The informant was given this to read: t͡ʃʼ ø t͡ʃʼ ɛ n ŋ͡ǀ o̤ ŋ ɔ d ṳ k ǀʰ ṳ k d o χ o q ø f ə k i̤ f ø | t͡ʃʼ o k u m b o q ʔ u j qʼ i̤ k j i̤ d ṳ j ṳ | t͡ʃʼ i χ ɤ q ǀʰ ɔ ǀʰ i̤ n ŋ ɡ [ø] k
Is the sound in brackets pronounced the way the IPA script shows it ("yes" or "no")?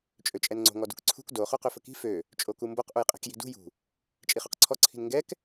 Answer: no